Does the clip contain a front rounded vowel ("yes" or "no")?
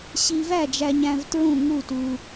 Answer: no